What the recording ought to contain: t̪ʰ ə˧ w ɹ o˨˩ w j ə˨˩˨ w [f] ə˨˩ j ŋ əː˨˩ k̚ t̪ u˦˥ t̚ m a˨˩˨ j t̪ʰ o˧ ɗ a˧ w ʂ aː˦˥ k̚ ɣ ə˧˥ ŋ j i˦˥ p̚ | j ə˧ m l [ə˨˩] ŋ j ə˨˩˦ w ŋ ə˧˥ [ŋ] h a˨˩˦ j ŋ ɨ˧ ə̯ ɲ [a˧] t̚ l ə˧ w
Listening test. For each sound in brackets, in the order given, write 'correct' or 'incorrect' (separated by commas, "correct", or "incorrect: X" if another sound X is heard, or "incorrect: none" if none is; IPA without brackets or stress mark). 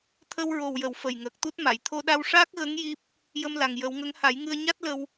correct, incorrect: a˨˩, correct, incorrect: a˦˥